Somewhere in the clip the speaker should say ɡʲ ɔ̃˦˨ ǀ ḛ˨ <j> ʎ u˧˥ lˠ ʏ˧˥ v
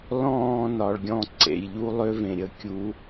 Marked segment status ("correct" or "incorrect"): correct